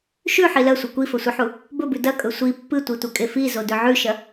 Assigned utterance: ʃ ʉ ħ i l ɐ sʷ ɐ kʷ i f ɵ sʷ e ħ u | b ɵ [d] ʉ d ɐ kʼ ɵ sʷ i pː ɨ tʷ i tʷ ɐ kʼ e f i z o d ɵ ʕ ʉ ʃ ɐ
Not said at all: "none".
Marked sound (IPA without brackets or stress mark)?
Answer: b